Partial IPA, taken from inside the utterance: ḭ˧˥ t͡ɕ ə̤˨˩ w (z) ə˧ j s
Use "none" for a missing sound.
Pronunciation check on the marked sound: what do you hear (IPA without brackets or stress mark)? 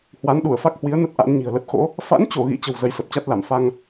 z